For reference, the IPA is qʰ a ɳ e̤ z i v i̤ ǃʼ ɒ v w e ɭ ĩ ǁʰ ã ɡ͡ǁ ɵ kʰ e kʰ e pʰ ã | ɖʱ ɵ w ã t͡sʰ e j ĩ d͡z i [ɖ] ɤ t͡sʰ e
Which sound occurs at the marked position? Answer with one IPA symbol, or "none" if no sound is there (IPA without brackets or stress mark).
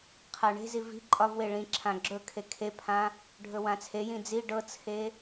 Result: ɖ